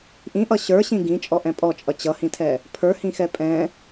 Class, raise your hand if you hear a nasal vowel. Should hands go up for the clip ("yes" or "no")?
yes